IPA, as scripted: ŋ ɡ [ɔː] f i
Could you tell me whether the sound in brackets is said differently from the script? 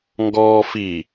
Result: no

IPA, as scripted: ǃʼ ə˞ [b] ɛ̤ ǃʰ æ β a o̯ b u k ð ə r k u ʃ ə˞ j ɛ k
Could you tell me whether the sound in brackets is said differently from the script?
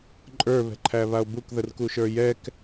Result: yes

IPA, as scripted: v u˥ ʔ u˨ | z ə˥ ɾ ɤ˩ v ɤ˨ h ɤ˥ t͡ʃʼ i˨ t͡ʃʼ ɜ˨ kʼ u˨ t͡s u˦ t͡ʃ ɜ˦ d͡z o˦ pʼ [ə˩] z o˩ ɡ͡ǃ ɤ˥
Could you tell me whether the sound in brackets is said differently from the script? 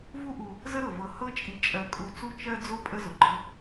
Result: yes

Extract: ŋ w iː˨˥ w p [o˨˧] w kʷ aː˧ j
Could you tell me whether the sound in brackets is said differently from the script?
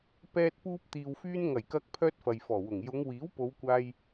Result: no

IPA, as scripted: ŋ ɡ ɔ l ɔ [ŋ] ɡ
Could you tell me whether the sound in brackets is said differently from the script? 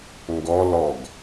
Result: yes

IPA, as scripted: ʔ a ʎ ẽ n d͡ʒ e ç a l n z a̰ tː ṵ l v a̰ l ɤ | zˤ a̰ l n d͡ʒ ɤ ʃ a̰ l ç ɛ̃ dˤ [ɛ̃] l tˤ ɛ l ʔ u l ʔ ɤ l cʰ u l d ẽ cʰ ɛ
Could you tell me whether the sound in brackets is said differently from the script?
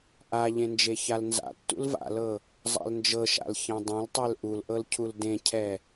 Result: no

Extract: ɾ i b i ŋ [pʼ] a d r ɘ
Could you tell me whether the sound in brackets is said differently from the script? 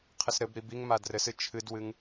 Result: yes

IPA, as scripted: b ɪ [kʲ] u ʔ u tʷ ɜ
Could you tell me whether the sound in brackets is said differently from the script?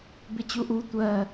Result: yes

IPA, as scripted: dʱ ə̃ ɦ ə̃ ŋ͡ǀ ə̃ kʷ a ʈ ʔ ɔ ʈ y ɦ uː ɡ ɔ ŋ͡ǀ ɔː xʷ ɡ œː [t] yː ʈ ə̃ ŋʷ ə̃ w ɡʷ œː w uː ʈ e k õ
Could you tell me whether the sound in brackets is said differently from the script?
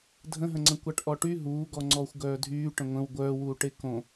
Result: yes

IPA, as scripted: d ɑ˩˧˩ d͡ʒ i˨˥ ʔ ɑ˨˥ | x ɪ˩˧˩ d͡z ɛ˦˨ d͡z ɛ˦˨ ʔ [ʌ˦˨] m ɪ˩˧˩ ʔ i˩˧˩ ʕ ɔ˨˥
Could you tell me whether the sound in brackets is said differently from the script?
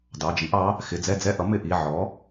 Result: yes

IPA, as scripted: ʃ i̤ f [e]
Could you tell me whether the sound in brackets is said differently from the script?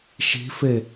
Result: no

